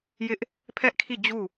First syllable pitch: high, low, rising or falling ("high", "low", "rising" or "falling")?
high